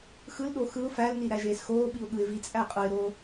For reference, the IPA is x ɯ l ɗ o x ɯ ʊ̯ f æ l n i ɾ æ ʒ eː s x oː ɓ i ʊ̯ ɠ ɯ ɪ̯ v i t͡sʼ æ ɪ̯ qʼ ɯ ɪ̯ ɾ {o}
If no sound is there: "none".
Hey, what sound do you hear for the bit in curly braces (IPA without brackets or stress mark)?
oː